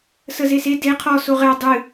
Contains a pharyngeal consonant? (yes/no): no